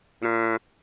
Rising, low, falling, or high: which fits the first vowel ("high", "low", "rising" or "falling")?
high